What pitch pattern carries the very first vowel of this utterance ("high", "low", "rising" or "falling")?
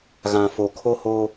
low